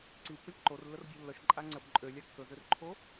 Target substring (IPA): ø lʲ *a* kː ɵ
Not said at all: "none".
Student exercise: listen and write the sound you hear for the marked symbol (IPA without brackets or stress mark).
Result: a